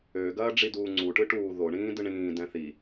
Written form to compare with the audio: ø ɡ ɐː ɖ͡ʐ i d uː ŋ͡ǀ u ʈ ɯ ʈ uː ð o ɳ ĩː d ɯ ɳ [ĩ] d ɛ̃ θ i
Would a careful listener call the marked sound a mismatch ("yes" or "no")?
yes